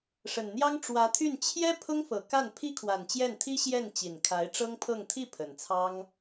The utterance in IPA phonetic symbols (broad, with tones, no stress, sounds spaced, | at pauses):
ʂ ə˨˩ n n̪ j ɑ˥ ŋ ʈ͡ʂ w ä˧˥ t̪ʰ y˥˩ n t͡ɕʰ j ɛ˥ pʰ ʊ˥ ŋ f ɤ˨˩ k a˥˩ n pʰ i˥ kʰ w a˨˩ n t͡ɕ j ɛ˥˩ n t̪ʰ i˥ ɕ j ɛ˥˩ n t͡ɕ i˨˩ n kʰ a˧˥ ɪ̯ ʈ͡ʂ ɤ˥ ŋ pʰ ɤ˥˧ ŋ t̪ʰ i˥˩ pʰ ə˨˩ n t͡sʰ ɑ˥ ŋ